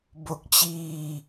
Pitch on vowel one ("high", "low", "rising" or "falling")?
low